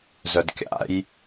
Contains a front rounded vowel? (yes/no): yes